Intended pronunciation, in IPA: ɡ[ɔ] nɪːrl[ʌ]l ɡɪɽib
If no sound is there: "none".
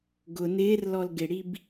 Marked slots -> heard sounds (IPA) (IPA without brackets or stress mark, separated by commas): ʊ, ɔ